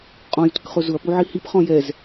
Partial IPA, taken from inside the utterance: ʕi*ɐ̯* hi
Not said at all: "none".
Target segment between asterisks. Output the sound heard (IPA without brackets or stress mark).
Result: none